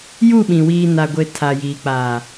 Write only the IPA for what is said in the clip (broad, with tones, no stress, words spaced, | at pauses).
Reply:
ju˦˨ɓĩ˨ wiː˨na˨ɡʷe˨ tʰa˨jiː˨k͡pa˨